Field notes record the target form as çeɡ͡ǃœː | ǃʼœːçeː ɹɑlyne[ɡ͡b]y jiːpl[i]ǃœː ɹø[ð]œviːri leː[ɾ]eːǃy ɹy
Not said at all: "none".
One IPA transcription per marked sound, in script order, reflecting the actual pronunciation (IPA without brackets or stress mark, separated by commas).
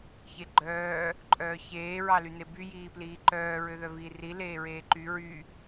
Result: b, iː, ð, ɹ